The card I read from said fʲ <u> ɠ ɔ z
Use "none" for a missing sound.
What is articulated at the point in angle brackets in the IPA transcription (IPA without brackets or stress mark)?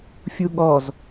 u